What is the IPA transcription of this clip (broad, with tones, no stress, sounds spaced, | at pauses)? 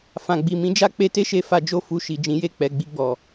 f ã˨ ɡ͡b i˨ m ĩ˨˦ d͡ʒ a˦ k͡p e˧ t e˦ ʃ e˧ f a˧ d͡ʒ o˧ f u˧ ʃ i˨ d͡ʒ ĩ˨˦ j e˦˨ k͡p ɛ˨ ɡ͡b i˧ ɡ͡b ɔ˨